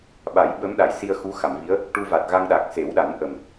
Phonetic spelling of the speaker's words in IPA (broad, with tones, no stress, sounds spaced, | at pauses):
ɓ a˨˩˦ j ɓ ə˧˥ m ɗ a˨˩˨ j s i˧ ə̯ x u˧˥ x a˨˩˨ m v i˧˥ ə̯ | ʈ u˧ v a˨˩ t̚ ɣ a˧ ŋ ɗ a˨˩ k̚ s e˨˩˦ w ɗ a˨˩˦ n ʔ ə˨˩ m